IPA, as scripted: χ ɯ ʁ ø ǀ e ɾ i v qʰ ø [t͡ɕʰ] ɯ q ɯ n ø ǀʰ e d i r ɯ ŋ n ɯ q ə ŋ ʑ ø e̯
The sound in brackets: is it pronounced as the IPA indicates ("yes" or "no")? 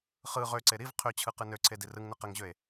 yes